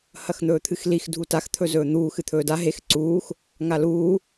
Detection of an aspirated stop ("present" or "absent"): present